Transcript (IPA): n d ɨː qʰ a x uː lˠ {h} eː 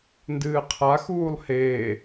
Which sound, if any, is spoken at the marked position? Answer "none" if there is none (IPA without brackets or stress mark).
h